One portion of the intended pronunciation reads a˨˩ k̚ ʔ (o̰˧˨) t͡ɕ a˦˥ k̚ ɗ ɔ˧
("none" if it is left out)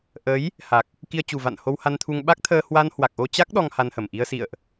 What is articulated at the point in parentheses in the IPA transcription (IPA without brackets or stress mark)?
o˧